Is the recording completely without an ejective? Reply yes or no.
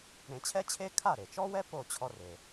yes